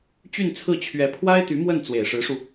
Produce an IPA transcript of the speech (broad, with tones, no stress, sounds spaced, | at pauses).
t͡ɕ y˥˧ n t͡sʰ ɹ̩˥˩ t͡ɕʰ ɥ ɛ˧˥ pʰ w a˥ ɪ̯ t̪ y˧˥ m w ə˥˩ n t͡s w e˨˩ ɪ̯ ʂ ɻ̩˧˥ ʂ u˧